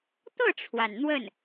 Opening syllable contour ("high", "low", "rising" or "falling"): falling